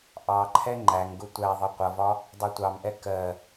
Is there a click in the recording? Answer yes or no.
yes